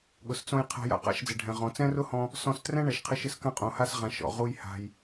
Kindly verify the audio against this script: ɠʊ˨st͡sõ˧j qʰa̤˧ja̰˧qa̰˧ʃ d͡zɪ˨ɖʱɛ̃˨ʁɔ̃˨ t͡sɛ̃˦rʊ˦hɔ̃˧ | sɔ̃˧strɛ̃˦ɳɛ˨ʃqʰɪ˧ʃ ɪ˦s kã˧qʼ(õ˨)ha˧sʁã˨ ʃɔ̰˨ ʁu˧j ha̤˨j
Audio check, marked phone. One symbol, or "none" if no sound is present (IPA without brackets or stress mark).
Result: õ˨